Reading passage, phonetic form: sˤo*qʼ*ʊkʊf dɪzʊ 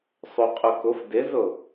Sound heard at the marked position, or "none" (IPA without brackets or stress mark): qʼ